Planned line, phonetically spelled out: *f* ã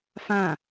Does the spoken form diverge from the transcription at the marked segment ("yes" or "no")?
no